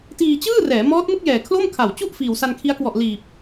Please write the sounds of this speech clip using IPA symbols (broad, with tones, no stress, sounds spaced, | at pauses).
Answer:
t iː˧ t͡ɕ ɯː˥˩ r ɛː˩˦ m ɔː˦˥ t̚ m ɯ˥˩ k̚ j ɛː˨˩ kʰ l o˥˩ m kʰ a˨˩ w t͡ɕ u˥˩ ʔ f iː˨˩ w s a˧ n kʰ i˦˥ a̯ k w ɔ˨˩ ʔ l iː˨˩ p̚